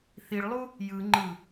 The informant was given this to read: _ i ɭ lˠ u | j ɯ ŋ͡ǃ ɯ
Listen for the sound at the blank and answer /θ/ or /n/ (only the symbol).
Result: θ